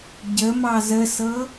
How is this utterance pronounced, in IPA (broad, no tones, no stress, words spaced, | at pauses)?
ɟə mɑzəsɤ